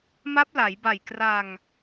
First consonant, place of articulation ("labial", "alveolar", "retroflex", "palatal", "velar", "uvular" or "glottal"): labial